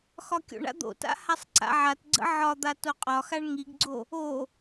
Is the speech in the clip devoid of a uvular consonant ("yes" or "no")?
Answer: no